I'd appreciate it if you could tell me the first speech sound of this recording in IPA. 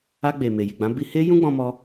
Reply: a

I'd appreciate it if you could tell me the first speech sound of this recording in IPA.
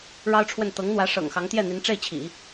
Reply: ɻ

